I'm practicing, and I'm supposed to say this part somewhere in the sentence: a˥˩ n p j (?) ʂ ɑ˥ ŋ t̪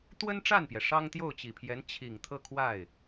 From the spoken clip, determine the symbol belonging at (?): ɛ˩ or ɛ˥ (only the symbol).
ɛ˩